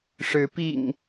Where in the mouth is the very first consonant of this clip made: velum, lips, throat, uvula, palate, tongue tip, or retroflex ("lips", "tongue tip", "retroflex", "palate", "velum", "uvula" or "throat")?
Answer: retroflex